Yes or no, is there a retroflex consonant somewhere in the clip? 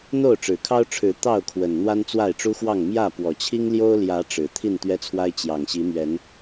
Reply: yes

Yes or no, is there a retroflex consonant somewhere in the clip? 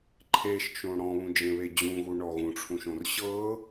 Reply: yes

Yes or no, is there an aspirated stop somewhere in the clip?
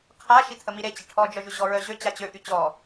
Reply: yes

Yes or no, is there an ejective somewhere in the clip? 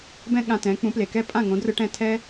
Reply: yes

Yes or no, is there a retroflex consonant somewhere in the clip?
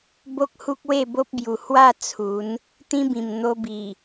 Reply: no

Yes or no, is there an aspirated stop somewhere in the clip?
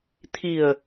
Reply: yes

